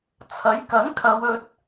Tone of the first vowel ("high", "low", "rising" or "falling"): rising